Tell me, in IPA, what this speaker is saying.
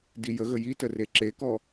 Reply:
dijəɣə jitəre ǁekɔ

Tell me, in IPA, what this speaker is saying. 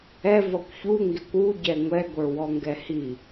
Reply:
ɛ vʌkʷçu ŋɡɪkʷu ɟɛŋʷɛ ɡʷə˞wɔŋɡɛhi

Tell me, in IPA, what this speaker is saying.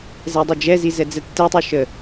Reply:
zɛdˤød͡ʒɛzi zɛd͡zɛtːɛtˤo ʃə

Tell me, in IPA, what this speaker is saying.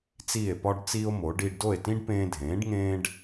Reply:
t͡siː˥˩e̯pɒ˥ɖt͡siː˥o̯mo˩˥ ɖiː˧ɖdo˥˩e̯tĩ˥ɖ pẽː˧dʱẽː˩˥ɖ ŋẽː˥ɖ

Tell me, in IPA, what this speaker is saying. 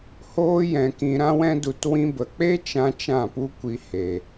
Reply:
hoː˦jɛ̃˧kĩ˧ ɾã˦wɛ̃˦du˧t wĩ˧bə˨k͡pe˦t͡ʃã˧ t͡ʃã˦˨pu˦kʷi˧ he˨

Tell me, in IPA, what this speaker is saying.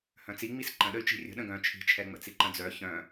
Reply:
hœ̃t͡siŋ͡mis ǃə̃ɗəy̯ t͡ʃi̤rʲə̤ ɗə̃ɡœ̃ t͡ʃʰi̤t͡ʃʰɛŋ͡mə̰t͡si ǃə̃d͡zœ çœ̃

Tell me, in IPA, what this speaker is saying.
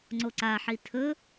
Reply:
ŋ͡ǀoǀaħi tʰɵ

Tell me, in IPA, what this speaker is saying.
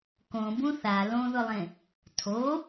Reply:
kõbũ θa lõðʊlˠẽ | tʰo

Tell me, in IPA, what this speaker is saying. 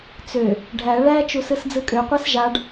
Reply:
t͡sø | ɖʱæ ɭæ t͡ʃusɯsd͡zɯkʼø qʷæsʒaɖ

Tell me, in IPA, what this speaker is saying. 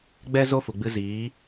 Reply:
ɡ͡bɛ˦ zo˦fu˨ɡ͡bɨ˧ ziː˨˦

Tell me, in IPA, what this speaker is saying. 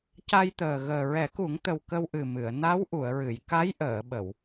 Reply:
ca˧jt̪əː˨˩ ɣəː˨˩ɹɛ˨˩˦ku˨˩˦ŋt̪ə˨˩w kə˧wʔɨ˨˩mɨ˨˩˨ə̯ na˧˥w ʔu˨˩˨ə̯ɹɨ˨˩˨j ka˧˥jʔəː˨˩˨ɓə˨˩˨w

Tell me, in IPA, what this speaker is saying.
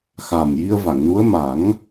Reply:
xa˨˩m ji˧ə̯va˨˩˨ŋnu˧˥ə̯ ma˨˩˦ŋ

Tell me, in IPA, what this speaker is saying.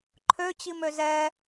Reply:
ǃʰøt͡ɕimø zɛ

